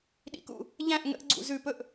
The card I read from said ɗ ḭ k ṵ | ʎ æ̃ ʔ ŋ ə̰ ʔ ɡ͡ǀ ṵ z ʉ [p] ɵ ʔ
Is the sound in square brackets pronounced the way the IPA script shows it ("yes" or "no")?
yes